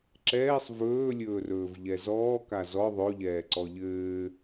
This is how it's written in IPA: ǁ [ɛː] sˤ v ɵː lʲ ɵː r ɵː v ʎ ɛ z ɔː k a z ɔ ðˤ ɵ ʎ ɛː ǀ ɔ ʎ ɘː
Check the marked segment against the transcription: correct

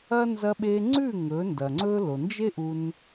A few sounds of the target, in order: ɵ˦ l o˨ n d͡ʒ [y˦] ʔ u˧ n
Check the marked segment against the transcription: incorrect: e˦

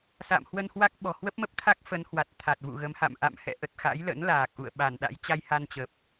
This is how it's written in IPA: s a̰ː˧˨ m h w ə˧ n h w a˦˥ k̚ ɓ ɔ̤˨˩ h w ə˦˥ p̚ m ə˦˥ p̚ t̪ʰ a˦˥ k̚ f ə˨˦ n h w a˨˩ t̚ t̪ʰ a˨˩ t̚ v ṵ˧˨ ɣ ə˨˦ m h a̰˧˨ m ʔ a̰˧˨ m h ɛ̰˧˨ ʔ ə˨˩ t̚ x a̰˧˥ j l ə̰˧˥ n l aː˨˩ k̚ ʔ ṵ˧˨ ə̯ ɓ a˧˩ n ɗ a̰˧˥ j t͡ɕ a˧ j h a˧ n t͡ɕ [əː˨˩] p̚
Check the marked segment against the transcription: correct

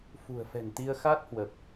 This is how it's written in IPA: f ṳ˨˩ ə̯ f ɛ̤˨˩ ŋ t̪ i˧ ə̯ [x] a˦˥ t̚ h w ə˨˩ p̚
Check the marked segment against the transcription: correct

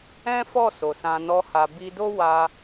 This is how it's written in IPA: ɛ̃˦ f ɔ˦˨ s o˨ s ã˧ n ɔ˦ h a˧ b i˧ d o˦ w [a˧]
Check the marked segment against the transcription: correct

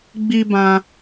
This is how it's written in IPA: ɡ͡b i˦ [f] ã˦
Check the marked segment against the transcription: incorrect: b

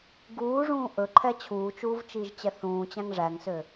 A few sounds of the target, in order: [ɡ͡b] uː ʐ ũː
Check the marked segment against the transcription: incorrect: ɡ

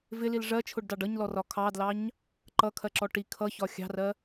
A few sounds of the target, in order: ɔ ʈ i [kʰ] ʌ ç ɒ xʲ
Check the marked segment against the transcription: correct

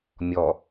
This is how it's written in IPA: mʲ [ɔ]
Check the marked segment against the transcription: correct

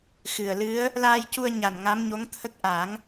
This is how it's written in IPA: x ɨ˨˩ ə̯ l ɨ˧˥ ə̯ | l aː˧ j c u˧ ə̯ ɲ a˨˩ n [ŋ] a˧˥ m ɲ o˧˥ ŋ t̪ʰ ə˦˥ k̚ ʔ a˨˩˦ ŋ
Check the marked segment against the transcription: correct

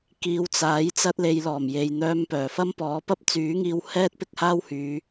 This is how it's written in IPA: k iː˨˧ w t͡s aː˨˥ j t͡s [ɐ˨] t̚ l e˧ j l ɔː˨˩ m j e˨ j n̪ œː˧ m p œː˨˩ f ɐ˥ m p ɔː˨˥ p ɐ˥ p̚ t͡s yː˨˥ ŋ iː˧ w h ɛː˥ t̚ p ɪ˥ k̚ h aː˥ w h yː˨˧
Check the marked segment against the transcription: incorrect: ɐ˥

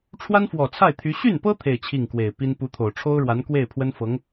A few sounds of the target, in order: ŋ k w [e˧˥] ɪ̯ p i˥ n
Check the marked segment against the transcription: incorrect: e˨˩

